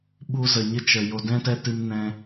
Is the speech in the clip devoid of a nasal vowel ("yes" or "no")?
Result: no